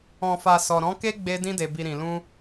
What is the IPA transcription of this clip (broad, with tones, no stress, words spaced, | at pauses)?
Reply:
ɔ̃˨fa˨ sɔ˨ɾɔ̃˨˦ke˦ɡ͡be˧ dĩ˧de˨bi˨ɾĩ˨ lũ˧